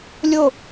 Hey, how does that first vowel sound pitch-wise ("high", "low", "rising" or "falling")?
falling